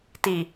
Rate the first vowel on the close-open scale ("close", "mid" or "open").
close